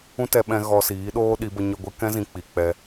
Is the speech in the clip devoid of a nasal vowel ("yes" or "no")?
no